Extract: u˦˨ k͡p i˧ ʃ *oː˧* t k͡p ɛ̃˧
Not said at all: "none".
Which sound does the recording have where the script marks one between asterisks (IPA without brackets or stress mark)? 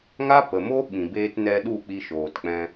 oː˨